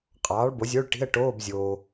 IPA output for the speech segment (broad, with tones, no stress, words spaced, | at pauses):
qʼɑː˩˥ɭbo˩˥zʲo˧˥˧ɭ ʈi̤˧˥˧ə̯ʈoː˧˥˧bzʲoː˨